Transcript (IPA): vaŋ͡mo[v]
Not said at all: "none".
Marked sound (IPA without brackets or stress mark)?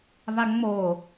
none